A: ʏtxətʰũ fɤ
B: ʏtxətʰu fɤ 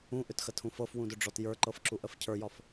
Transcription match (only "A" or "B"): A